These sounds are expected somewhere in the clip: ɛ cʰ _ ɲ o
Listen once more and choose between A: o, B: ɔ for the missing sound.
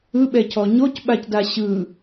B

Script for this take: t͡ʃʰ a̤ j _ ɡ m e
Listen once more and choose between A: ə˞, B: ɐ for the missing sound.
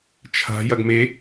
B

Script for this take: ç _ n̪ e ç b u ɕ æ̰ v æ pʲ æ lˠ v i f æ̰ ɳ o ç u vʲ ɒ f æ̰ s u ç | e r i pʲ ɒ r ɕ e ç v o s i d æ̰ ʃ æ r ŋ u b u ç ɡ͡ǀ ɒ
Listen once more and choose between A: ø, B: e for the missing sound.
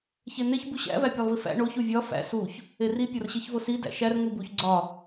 B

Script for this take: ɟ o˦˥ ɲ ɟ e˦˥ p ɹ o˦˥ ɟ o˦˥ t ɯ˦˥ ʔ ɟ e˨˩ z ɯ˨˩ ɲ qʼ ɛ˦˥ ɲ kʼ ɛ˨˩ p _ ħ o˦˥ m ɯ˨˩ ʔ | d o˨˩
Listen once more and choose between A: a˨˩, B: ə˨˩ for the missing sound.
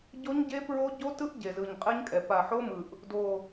A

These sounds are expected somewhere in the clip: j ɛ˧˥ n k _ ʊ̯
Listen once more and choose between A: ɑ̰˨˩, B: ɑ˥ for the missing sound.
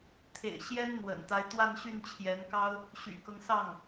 B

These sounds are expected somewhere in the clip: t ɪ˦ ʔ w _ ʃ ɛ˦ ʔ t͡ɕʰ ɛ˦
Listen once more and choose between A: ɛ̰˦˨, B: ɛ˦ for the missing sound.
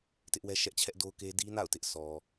B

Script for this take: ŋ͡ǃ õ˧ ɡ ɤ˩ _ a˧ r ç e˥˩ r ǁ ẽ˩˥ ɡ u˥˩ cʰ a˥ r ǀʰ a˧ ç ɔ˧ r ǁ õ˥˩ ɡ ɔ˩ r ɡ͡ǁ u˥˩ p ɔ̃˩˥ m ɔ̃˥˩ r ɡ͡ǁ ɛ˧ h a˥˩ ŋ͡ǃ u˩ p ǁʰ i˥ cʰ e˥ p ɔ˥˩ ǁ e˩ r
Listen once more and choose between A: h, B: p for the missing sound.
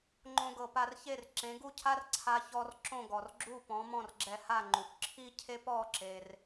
B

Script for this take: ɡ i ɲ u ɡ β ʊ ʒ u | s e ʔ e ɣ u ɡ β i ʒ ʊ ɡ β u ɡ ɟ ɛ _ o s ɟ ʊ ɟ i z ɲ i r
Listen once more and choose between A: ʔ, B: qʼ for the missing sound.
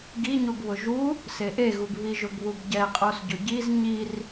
B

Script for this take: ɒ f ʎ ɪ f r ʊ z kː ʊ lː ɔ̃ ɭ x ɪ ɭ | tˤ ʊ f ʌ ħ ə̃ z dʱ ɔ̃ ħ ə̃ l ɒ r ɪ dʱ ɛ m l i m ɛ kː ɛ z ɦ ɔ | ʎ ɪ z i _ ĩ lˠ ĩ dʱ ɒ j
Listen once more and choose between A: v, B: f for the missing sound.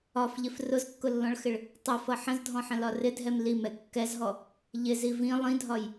A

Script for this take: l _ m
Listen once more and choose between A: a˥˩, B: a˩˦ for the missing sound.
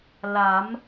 B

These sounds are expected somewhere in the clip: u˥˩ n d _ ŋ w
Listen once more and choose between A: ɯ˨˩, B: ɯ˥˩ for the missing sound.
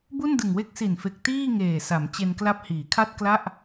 A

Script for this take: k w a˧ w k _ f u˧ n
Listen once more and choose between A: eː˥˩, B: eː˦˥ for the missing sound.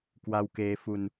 B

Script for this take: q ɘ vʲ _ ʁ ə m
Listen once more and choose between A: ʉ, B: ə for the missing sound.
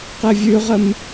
A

